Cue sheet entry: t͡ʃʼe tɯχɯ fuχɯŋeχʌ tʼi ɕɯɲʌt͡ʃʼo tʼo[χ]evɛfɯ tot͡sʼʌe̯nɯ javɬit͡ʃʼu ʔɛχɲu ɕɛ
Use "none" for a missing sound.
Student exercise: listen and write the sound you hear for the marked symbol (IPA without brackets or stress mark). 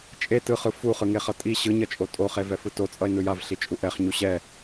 χ